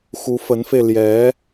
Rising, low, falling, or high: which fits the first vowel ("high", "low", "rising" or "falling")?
rising